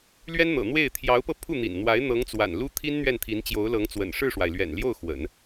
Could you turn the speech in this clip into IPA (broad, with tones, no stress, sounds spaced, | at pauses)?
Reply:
l ɥ ɛ˥ n n̪ ɤ̰˨˩ n̪ w e˥˩ ɪ̯ t̪ʰ j ɑ˧˥ ʊ̯ p ɤ˧ pʰ u˥˩ n̪ ḭ˨˩ n n̪ w a˧˥ ɪ̯ n̪ ɤ˧˥ ŋ t͡s w a̰˨˩ n l u˥ t̪ʰ i˥ n n̪ ɥ ɛ˥˩ n t̪ʰ i˧˥ n t͡ɕ j o˧˥ ʊ̯ l ɤ˧˥ ŋ t͡s w ə̰˨˩ n ʂ ɻ̩˥˩ ʂ w a˩ ɪ̯ l ɥ ɛ̰˨˩ n l j o˥˩ ʊ̯ x w ə̰˨˩˦ n